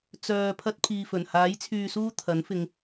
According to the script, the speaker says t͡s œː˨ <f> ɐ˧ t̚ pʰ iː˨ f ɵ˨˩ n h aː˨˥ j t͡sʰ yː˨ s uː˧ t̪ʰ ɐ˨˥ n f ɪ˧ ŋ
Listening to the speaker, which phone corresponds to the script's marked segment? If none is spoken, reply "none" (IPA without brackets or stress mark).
pʰ